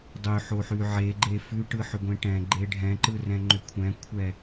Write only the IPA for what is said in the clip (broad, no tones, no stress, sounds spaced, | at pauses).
dˤ ʏ ħ o ħ ʉ ʕ e ɡ͡ǃ e f ʉ ʈ ɯ ħ ʏ ɡʷ ẽ ʈ ɛ̃ ɡ͡ǃ e ɖʱ ɛ̃ ǃ ɯ r ɛ̃ ŋ͡ǃ ʏ kʷʰ ɛ̃ kʷʰ ɛ